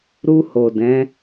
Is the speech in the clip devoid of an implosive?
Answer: yes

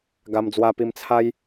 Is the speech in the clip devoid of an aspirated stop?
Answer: no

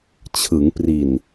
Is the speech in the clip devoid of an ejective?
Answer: yes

